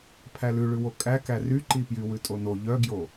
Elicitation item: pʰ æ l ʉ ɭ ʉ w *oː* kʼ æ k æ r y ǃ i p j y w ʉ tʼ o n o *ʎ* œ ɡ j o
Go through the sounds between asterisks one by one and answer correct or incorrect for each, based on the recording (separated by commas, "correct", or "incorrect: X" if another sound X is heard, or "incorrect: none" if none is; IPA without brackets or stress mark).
incorrect: o, correct